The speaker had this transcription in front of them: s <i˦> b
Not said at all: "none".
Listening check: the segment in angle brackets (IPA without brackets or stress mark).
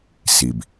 i˨